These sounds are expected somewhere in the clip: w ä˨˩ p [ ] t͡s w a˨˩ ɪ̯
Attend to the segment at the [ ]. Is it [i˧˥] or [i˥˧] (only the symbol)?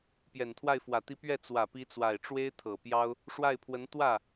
i˧˥